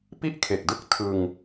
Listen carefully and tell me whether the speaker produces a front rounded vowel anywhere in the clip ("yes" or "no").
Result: no